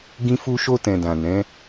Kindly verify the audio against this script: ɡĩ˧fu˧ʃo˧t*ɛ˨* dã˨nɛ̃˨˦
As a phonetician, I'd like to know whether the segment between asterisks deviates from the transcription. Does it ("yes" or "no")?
yes